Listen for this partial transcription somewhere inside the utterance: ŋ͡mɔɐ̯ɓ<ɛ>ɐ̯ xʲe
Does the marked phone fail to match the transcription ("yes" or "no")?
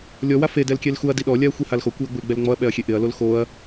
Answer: no